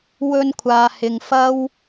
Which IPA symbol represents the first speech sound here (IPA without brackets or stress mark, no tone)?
w